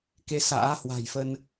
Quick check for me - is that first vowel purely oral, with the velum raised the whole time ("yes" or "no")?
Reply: yes